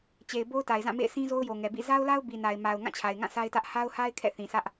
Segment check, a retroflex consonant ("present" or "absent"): absent